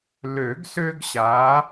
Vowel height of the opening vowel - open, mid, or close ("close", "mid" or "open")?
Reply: mid